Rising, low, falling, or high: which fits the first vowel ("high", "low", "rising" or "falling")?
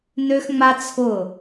high